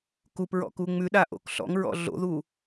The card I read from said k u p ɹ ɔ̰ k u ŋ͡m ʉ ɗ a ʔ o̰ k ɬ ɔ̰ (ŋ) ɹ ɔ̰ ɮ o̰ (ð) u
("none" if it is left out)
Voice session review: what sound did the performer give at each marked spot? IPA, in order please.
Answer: ŋ, ð

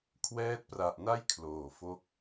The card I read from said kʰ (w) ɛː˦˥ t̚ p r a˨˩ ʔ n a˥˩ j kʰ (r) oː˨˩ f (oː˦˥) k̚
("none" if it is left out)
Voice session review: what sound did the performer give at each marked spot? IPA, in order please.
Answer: w, l, o˦˥

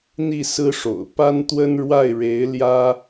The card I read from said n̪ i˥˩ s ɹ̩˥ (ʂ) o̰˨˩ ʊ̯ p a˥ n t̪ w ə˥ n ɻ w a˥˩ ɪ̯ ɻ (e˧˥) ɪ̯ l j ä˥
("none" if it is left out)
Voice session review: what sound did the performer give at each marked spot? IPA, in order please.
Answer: ʂ, e˧˥

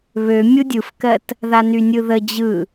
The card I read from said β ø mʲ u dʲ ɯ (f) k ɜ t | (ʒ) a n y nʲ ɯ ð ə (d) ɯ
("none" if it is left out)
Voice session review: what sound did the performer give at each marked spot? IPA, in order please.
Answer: f, ð, d͡ʑ

